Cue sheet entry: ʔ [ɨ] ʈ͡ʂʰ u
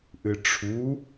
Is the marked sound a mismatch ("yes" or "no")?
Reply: no